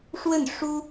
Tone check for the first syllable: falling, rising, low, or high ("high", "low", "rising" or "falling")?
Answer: falling